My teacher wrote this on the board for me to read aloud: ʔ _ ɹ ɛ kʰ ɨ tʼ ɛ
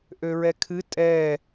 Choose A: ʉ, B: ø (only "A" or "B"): B